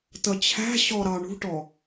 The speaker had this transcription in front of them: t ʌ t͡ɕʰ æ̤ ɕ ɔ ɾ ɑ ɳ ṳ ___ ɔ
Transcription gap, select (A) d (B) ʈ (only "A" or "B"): B